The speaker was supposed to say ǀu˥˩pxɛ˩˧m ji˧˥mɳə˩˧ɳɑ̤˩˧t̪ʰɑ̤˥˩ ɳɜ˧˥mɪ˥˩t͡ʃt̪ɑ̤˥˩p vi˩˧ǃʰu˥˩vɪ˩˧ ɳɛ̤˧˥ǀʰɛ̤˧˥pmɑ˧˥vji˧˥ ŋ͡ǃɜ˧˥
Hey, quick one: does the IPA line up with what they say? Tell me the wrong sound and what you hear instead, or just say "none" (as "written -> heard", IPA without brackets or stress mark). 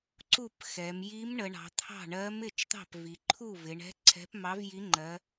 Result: none